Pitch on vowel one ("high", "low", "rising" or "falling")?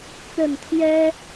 low